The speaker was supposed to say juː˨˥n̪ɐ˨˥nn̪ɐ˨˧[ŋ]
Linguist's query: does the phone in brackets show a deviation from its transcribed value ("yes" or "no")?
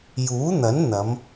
yes